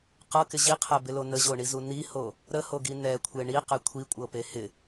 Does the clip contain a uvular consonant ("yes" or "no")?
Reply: yes